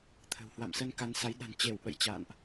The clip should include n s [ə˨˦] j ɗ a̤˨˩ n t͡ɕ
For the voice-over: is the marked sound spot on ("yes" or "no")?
no